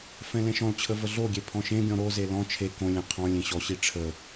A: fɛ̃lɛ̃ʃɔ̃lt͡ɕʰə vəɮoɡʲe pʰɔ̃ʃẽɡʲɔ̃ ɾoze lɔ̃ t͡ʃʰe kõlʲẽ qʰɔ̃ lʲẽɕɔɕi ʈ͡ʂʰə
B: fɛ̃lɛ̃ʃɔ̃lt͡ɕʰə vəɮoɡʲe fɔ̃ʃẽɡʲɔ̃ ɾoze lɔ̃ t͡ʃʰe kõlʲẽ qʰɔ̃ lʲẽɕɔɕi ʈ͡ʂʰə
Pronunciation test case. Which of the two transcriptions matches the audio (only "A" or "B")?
A